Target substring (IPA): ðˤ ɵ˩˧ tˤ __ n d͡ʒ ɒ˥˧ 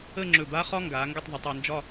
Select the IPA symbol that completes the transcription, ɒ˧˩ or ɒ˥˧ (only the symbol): ɒ˥˧